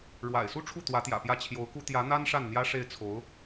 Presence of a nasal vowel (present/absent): absent